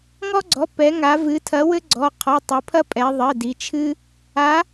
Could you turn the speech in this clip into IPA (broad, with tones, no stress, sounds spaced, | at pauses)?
ŋ ɔ˥ ɡ͡ǀ ɔ˩˧˩ p ɛ˩˧ ŋ a˩˧ v ɨ˩˧ tʰ ɐ˨˥ w ɘ˥ ɡ͡ǀ ɔ˩˧˩ qʰ ɔ˩˧˩ tˤ ɨ˩˧ pʰ ɐ˥ pʼ ɛ˩˧ ðˤ ɘ˩˧˩ d i˩˧ t͡ʃʰ ɨ˥ | a˨˥